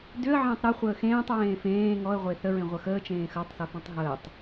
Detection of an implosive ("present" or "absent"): absent